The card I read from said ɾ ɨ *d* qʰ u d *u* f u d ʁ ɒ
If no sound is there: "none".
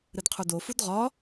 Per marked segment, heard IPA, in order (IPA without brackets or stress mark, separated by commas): d, o